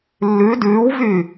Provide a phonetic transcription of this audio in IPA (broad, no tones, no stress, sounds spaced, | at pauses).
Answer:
lː ʉ d ʉː w v y